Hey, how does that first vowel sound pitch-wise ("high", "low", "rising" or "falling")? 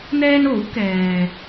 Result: high